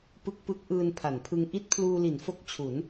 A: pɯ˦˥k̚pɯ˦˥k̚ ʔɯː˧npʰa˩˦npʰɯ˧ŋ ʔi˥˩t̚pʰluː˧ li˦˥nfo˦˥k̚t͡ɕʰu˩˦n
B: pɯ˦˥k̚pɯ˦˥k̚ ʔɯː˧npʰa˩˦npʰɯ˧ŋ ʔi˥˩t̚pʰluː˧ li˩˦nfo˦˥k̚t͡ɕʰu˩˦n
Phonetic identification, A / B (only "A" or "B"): B